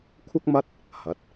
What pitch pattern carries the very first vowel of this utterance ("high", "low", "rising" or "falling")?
high